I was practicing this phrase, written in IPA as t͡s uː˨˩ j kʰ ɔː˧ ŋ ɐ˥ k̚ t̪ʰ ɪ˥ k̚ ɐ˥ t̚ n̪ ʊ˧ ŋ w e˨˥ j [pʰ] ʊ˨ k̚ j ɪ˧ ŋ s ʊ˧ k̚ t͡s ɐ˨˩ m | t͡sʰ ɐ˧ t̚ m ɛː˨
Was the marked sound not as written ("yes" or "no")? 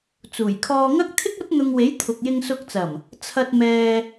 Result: yes